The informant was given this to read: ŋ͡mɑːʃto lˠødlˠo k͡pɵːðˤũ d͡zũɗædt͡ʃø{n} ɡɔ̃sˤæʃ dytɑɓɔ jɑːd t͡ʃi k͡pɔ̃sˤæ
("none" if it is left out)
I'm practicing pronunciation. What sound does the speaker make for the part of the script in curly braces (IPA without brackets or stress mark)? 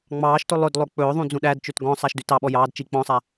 t